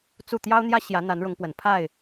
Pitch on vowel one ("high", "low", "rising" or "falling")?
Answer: falling